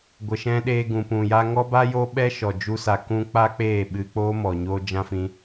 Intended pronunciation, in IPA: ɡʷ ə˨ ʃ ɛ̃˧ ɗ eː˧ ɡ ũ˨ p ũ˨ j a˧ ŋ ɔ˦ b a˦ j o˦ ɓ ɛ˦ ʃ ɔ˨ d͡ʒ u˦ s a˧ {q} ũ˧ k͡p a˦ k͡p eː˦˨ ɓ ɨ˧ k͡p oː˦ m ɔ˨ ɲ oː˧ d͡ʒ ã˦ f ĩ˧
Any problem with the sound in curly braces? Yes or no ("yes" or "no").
yes